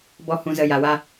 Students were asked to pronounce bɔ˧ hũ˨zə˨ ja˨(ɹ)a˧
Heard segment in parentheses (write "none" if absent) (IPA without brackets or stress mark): w